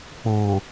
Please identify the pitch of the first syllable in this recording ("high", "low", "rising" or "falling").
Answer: low